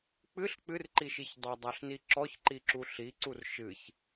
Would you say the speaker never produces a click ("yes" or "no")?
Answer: no